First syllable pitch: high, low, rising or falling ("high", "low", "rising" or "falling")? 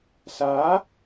rising